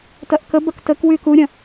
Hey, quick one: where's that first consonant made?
tongue tip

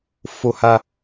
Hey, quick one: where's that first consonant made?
lips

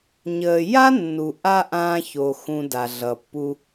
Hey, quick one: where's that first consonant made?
palate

